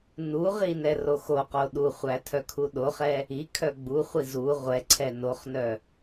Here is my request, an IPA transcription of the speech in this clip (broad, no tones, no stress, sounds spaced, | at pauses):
n u ʁ i n ɛ r o x o q o ɗ u χʷ æ tʰ œ kʰ u ɗ o χ ɛ | i kʰ œ ɡ͡b u χʷ i z u ʁʷ ɛ ǀʰ ɛ n o χ n œ